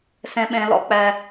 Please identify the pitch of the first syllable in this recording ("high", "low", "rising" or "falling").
high